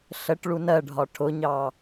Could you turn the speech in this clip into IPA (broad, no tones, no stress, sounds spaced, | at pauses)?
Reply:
ɬ ə ʈ ɭ u n ɜ ɖʱ ɒ ʈʰ ʊ ɲ ɑ